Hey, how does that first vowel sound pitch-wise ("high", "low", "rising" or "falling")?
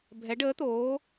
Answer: rising